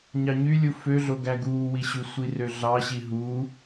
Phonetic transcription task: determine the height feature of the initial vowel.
low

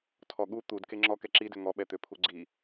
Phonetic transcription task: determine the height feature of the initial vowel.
mid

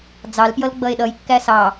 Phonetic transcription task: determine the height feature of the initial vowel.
low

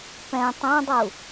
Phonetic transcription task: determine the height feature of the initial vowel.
mid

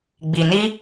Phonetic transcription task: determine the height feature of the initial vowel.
high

